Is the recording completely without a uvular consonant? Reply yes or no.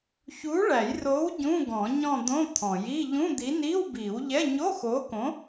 yes